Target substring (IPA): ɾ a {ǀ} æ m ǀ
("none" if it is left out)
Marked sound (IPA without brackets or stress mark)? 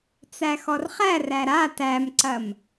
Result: t